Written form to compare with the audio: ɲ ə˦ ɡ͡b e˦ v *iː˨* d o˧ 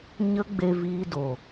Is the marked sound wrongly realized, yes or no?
yes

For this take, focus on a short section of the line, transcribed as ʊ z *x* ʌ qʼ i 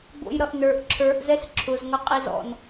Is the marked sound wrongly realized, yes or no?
yes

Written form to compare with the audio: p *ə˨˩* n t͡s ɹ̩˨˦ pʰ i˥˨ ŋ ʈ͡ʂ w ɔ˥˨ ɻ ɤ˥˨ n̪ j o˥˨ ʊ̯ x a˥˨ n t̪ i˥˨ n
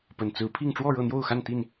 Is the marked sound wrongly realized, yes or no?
no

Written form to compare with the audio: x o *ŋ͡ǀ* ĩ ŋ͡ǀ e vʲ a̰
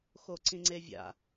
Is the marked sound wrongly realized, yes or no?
yes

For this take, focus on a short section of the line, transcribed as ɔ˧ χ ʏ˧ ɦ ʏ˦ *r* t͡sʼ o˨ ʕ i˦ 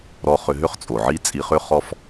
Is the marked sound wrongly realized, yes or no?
yes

